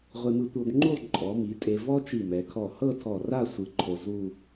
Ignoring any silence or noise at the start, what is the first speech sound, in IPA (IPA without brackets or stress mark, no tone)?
ʁʷ